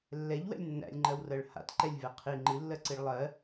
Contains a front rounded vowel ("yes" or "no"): no